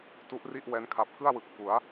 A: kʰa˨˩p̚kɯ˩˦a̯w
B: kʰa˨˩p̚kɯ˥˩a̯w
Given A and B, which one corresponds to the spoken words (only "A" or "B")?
B